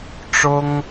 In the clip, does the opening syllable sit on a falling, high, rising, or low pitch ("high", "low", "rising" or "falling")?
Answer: high